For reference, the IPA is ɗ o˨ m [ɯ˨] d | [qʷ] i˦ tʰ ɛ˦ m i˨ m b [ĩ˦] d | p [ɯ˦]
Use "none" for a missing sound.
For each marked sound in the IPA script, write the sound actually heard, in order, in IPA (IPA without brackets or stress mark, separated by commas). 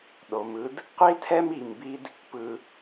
ɯ˦, qʷ, i˦, ɯ˦